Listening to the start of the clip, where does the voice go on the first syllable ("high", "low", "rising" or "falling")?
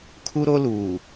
high